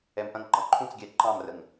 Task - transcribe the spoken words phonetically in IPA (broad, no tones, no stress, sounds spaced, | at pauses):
ɛ m ʔ ɐ̃ ŋ ǃ ɑ̃ ǃʰ ũ t͡s ɡʲ ɛ ǃ ɑ̃ m r ə ŋ